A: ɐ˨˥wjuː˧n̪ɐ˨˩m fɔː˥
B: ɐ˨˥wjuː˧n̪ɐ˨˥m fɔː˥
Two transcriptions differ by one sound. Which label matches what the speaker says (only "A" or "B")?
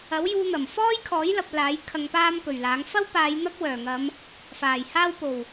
A